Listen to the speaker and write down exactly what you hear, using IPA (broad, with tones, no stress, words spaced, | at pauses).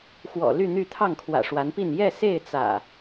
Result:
xwɔ̰˨˩ly˥˨n̪y˥˨ t̪ʰɑ˥˨ŋkʰwä̰˨˩ʂwa˨˦npi˥˨n jɛ˥˨se˥˨ɪ̯ t͡sä̰˨˩